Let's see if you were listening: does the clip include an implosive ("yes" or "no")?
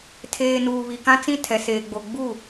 no